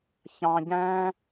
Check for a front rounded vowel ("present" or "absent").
absent